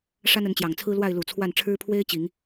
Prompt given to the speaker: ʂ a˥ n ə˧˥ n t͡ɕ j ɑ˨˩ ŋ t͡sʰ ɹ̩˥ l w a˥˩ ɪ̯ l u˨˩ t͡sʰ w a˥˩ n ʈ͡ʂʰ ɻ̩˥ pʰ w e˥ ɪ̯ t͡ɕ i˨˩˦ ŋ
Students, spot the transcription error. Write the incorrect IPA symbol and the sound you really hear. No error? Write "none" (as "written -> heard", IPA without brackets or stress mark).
none